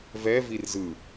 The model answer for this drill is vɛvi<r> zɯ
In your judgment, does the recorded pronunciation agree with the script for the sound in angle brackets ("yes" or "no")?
yes